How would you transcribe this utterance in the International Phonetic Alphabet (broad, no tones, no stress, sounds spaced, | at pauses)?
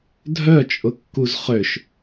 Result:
dʱ œ t͡ʃʼ ʊ kː u z χ ø ʃ